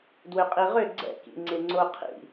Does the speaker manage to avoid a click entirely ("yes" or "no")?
no